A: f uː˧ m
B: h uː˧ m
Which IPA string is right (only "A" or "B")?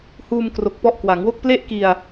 B